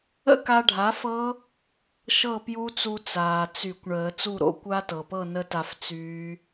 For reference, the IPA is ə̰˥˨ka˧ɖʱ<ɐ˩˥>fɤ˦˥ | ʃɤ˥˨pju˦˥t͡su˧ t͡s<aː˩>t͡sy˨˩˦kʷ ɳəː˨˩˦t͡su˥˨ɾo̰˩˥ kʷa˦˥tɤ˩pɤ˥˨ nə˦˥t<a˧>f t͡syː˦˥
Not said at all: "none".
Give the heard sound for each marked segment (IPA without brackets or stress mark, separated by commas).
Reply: a˩˥, aː˩, a˧